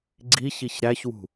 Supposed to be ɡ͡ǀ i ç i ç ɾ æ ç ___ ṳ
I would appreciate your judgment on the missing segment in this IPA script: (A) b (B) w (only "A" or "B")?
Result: B